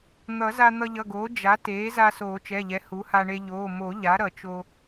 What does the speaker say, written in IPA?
n̪ ʌ˨˩˦ z a˧ n̪ ʌ˧ ʎ ʌ˩˧˩ ɡ oː˩˥ d͡ʒ a˩˥ t eː˩˥ z a˧ s oː˨˩˦ t͡ʃ ɛ˩˧˩ ʎ ɛ˩˥ h u˩˥ h a˧ ɳ e˧ ʎ oː˩˧˩ m o˨˩˦ ʎ a˩˥ ɾ ʌ˨˩˦ t͡ʃ o˧

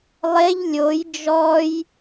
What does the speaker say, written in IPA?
lˠ e ʎ lʲ o j d͡ʒ ɔ j

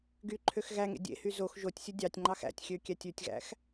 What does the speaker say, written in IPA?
ɡ y ǃʰ ø x ɣ æ ŋ ḛ dʲ ḛ h y z o x ʒ o tʲ sʲ ɵ dʲ ɑ tʲ ŋ͡ǃ ɑ x æ̰ tʲ xʲ ø kʲ æ tʲ ʉ tʲ ɣ æ̰ x

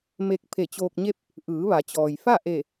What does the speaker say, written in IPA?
m e˧ k̚ pʰ e˧˩ t͡ɕ oː˧ k̚ ɲ e˥˨ p̚ | ʔ ɯː˩˧ ʋ a˩˧ t͡ɕ ɔː˩ j f a˥˨ ʔ e˧˩

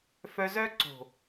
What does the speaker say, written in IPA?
f œ˧ z œ˦ ǀ o̤˨

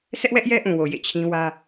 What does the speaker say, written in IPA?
s ɛ˦ ʔ w ɛ˦ ʔ j ɛ˦ ʔ ũ˨ w o˨ j ḛ˦˨ t͡ɕʰ ĩ˦ w ä˦

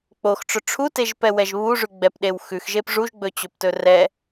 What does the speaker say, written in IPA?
k͡p o x ʈ͡ʂ ɵ ʈ͡ʂʰ u t e ʒ p ɛ w ɛ ʒ β u ʐ ʉ ɡ͡b ɛ p ɗ e w x ʉ x ʒ e p ʐ u ʒ ɡ͡b ɵ t͡ɕ ɵ p t ɵ r ɛ

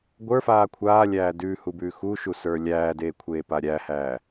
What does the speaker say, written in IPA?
ɡʷ ə˞ f aː kʷʰ aː lʲ æː d ʉː h u b ʉː x u ʃ u s ə˞ lʲ æː d eː kʷʰ eː p a ɾʲ æ h æː

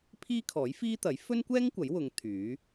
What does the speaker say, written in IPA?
pʰ iː˥ kʰ ɔː˨˥ j f iː˥ t̪ ɐ˨˥ j f ɵ˥ n kʷ ɛː˥ ŋ kʷ ɐ˨˥ j w ʊ˨˧ ŋ t̪ʰ yː˨˥

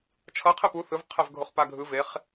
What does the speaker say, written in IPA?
t͡ʃʰ ʌ qʰ e p u θ ɯ v qʰ ɛ v ɡʱ o χ p a ɡʱ ɯ v e χ

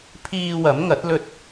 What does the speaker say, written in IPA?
pʰ iː˧ w ɐ˨˥ m ŋ ɐ˨˥ t̚ l ɵ˧ t̚

